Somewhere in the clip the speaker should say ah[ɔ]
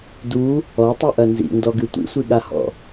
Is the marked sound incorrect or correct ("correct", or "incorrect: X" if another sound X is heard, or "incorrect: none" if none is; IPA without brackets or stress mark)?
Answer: incorrect: ɔ̰